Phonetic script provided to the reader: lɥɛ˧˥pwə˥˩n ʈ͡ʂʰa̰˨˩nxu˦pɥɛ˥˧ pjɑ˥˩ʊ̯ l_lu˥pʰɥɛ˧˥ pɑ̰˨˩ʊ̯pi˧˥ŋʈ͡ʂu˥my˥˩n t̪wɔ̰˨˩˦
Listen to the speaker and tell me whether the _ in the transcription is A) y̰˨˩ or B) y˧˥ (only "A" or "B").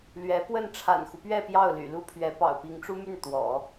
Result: A